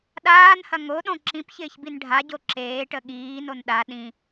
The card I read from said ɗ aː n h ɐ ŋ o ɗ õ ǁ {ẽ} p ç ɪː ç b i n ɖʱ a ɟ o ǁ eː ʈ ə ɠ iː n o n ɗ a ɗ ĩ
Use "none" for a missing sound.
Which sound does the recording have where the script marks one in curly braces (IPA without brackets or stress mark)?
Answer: ĩ